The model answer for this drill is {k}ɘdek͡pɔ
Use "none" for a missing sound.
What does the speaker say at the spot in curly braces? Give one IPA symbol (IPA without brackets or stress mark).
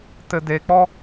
t